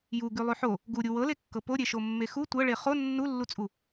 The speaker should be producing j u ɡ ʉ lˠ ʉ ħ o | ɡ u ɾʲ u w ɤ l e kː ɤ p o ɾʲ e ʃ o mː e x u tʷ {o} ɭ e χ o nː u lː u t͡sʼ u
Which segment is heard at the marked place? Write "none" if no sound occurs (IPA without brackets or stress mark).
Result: ɤ